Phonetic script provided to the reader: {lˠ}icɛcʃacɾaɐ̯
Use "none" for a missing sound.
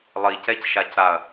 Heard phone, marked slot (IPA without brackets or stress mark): lˠ